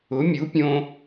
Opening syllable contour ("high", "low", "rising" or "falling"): rising